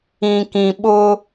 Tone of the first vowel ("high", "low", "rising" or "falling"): low